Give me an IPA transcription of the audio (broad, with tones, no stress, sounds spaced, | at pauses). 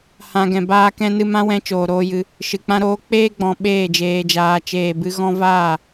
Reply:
h ã˧ ɡ ɛ̃˨ b aː˦ k ɛ̃˦ n ɨ˦ m ã˦ w ɛ̃˧ t͡ʃ oː˨ ɾ oː˧ j ɨ˧ | ʃ ɨ˨ k͡p ã˦ ɾ oː˦ k͡p eː˦ ɡ͡b ɔ̃˨ ɓ eː˦˨ d͡ʒ eː˨ d͡ʒ aː˨ t͡ʃ eː˨ b ɨ˧ ɣ ɔ̃˧ v aː˦˨